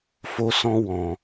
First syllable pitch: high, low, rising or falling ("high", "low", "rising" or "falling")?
high